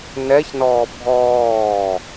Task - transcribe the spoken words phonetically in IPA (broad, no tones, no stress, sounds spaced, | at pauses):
n ɛ ç n ɔː bʱ ɔː